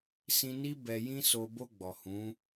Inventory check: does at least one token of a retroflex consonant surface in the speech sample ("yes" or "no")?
no